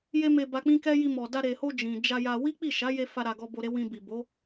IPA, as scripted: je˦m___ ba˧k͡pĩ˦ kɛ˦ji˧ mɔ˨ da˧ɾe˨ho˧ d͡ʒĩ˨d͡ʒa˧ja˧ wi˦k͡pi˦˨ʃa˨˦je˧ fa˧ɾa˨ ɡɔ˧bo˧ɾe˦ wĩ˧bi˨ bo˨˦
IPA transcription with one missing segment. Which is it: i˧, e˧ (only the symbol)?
e˧